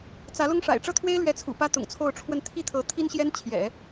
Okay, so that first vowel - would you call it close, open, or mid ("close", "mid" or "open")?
open